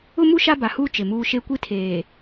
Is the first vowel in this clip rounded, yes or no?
yes